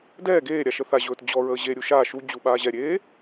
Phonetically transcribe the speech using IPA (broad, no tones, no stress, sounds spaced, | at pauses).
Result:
d ɛː ɡ eː ɾʲ a ʃ ə θ a ʑ ɵː t d͡ʑ ɔ ɹ əː ʑ e ɾʲ u ʃ a ʃ u d͡ʑ u ɓ aː ʑ ɛ ɾʲ eː